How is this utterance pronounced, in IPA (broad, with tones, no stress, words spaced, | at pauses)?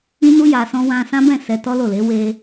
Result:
ĩ˦nu˦ ja˧sɔ̃˦ wã˧sã˦bɛ̃˦˨ sɛ˧tɔ˦lo˦˨le˨˦ we˧